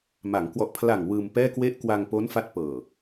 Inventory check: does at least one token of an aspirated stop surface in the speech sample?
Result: yes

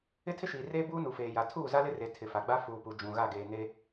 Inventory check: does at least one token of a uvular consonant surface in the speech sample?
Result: no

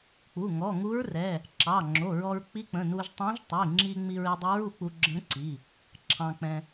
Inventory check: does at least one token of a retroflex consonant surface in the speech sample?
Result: no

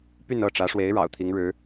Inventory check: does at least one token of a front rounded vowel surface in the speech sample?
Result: yes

